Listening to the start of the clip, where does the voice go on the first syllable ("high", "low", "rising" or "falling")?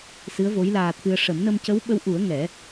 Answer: rising